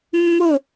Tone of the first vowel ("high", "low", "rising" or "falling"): falling